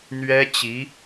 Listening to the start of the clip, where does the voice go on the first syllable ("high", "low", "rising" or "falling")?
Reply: high